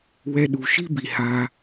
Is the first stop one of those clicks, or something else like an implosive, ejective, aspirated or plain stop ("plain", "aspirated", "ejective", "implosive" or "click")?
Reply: implosive